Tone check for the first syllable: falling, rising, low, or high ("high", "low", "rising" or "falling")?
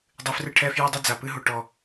low